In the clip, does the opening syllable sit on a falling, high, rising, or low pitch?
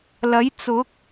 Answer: rising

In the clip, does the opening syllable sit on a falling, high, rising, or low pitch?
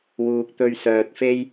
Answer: low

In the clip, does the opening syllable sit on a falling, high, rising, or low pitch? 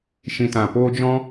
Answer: low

